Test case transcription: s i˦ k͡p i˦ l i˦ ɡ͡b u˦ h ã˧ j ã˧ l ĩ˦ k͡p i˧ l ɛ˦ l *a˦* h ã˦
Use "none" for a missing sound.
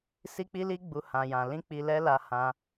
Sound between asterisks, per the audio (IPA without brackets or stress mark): a˦